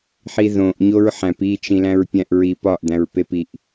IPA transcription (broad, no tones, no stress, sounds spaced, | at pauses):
ħ i ð õ ʔ ɲ o ɹ ħ æ̃ p i t͡ʃ ĩ l æ̃ ɹ pʲ æ̃ ʔ ɹ i p ɒ ʔ d̪ æ̃ ɹ p e p i ʔ